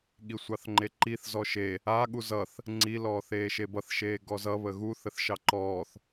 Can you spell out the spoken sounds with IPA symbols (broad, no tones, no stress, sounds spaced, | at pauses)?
ɠ i sʷ ɑ θ ŋ͡ǃ e ǃ i θ z ɔ ʃ e | a ɠ u z ʌ θ | ŋ͡ǀ i l ɔː θ eː ʃ e b ʌ θ ʃ eː ɡ ɔ z ʌ β ə ɣ u θ ə θ ʃ ɑ ǃ ɔː θ